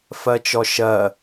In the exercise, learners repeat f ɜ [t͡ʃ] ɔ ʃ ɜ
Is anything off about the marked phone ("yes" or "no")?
no